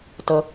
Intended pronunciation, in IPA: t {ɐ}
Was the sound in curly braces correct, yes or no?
no